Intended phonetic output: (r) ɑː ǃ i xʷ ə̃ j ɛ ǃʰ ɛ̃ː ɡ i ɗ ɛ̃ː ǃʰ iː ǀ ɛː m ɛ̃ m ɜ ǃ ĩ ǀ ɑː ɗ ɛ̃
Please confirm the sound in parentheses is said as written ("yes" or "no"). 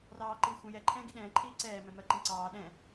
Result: yes